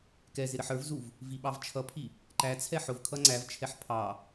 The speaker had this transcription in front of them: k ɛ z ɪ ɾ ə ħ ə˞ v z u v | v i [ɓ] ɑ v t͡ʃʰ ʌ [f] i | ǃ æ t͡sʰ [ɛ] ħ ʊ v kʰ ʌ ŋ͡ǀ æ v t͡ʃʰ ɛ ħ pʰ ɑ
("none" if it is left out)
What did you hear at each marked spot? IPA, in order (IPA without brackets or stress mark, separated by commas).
ɓ, pʰ, ɛ